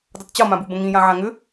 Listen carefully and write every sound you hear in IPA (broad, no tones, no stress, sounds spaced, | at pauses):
d ɤ tˤ t͡ɕ ɤ m ã b u b ə̃ ŋ ĩ j ã ʕ ã ŋ ʏ